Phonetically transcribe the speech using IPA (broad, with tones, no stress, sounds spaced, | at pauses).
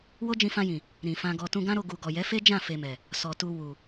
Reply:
w o˦ d͡ʒ ĩ˧ f ã˧ j ĩ˨ | ɾ ĩ˨ f ã˧ ɡ ɔ˧ t ũ˧ ɡ ã˦ ɾ o˧ ɡ u˨ ɡ ɔ˨ j ɛ˨˦ f e˦ d͡ʒ ã˦˨ f e˧ m ɛ˨ | s ɔ˨ t u˧ w u˨